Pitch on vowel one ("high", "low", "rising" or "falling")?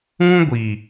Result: high